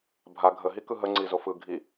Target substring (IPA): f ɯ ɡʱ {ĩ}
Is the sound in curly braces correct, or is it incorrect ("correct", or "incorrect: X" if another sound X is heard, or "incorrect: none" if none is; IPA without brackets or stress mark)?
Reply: incorrect: i